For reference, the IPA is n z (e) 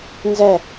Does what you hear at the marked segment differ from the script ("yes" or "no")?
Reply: yes